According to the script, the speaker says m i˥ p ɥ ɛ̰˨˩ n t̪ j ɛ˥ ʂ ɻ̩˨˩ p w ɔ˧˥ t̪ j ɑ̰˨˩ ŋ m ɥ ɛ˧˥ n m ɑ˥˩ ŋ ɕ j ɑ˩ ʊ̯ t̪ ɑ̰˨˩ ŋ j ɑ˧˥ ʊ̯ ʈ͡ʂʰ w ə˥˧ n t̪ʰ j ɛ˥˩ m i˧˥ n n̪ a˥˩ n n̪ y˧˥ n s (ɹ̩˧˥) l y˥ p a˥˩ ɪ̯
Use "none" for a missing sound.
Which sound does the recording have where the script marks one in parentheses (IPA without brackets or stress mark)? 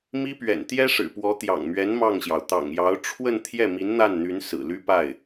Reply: ɹ̩˨˩